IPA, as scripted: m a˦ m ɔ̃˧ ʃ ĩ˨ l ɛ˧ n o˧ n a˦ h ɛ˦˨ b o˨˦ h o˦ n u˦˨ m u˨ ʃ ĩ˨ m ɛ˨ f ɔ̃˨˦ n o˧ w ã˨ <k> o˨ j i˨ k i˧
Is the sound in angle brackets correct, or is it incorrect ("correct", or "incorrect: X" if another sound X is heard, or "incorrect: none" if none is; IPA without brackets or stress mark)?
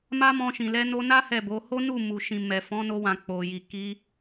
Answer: incorrect: k͡p